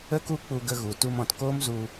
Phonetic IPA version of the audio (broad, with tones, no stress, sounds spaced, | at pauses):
ə˦ k u˦ k͡p u˧ ɡ ə˧ ɣ u˨ t u˧ m ɔ̃˨ t k oː˦ m z u˧